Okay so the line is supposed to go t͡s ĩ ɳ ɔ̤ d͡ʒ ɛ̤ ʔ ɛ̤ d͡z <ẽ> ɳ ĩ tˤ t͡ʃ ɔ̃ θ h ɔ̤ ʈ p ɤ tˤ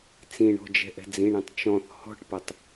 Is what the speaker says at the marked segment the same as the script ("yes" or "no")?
no